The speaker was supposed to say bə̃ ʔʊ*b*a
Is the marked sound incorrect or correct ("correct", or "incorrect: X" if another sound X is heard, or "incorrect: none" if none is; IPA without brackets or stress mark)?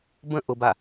correct